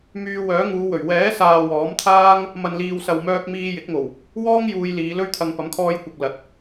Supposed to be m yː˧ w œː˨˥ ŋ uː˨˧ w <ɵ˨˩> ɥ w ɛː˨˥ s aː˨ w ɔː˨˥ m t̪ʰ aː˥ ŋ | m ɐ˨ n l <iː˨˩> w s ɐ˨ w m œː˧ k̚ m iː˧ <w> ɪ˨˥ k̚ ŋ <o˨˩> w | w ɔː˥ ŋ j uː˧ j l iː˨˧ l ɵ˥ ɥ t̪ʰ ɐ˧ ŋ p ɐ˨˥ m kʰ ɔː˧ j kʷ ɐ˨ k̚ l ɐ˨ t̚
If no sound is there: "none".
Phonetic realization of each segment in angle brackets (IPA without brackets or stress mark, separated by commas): ɵ˨˩, iː˨, j, o˨˩